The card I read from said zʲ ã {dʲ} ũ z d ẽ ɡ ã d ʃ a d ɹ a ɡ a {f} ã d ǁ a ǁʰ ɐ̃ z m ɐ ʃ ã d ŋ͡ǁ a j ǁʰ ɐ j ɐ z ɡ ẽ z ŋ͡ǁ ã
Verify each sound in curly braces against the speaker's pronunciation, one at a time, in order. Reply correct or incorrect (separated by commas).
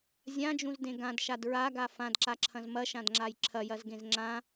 incorrect, correct